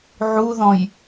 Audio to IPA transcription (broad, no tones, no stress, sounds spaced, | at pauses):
ʕ u ð ɔ̃ j